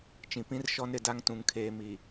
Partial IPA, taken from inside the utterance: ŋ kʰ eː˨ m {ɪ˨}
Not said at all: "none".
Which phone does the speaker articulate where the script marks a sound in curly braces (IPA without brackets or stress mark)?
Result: i˨